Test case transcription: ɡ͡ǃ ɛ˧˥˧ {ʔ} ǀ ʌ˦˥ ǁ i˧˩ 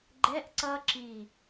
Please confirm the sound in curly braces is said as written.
yes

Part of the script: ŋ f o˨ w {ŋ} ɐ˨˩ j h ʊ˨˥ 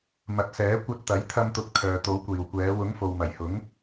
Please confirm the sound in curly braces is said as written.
no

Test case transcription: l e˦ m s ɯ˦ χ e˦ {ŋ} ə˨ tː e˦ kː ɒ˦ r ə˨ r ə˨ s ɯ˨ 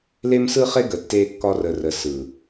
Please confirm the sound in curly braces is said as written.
no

